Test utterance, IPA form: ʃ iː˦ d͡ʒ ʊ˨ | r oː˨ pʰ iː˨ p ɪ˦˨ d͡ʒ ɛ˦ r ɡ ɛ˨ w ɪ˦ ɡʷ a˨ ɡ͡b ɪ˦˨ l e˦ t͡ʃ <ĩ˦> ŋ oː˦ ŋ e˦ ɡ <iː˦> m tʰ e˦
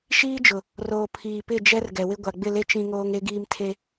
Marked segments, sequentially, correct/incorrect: correct, correct

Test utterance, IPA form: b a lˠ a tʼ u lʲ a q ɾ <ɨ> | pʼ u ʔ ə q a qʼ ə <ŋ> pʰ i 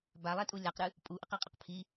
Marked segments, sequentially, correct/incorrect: correct, incorrect: q

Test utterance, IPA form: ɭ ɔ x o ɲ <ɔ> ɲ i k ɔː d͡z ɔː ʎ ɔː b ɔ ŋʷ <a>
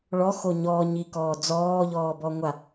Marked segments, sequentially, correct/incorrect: incorrect: ɔː, correct

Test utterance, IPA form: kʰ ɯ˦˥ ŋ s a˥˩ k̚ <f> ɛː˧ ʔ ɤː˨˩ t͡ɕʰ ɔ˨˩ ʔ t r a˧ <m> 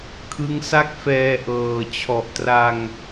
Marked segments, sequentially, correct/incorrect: correct, incorrect: ŋ

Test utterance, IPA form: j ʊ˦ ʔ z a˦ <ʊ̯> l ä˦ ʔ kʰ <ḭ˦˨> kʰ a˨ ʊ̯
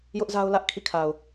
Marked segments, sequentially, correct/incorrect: correct, correct

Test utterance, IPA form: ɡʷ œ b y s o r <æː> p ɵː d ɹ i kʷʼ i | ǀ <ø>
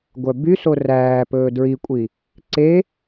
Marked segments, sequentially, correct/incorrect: correct, incorrect: e

